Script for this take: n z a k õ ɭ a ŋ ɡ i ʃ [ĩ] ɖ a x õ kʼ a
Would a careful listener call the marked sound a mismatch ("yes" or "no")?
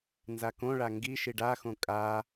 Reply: yes